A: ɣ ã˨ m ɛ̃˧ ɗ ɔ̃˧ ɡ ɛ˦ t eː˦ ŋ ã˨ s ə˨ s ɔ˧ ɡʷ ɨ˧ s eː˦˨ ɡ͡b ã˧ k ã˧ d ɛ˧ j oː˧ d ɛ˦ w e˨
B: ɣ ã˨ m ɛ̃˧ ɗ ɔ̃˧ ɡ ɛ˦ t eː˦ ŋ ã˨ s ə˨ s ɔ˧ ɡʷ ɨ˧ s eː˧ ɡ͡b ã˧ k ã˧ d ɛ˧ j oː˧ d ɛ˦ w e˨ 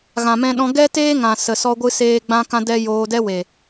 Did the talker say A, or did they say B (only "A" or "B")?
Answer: B